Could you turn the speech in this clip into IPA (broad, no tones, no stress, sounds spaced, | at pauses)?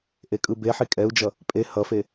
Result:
ʔ e kʼ ɯ b e ħ i kʼ ɛ u̯ d͡ʒ ʌ | pʼ e h ʌ f e